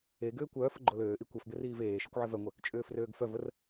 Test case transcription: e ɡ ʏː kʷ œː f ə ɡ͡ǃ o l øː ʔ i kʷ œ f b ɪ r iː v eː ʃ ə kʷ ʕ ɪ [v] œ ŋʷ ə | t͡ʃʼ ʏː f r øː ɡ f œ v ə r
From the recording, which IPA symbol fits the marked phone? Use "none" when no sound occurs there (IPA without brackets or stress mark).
v